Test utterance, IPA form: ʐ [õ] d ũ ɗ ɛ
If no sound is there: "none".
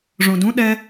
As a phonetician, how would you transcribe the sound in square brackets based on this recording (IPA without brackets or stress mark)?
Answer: õ